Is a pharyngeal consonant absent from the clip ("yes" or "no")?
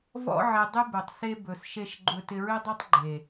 no